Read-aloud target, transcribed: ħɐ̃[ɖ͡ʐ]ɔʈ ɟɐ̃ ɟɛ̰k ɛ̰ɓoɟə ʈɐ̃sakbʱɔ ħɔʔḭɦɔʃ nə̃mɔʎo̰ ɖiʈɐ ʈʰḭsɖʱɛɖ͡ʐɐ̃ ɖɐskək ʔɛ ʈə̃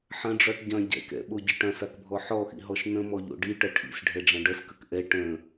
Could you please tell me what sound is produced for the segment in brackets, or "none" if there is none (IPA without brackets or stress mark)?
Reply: ɖ͡ʐ